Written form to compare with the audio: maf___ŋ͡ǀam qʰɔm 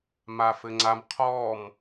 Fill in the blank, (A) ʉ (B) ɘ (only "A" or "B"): B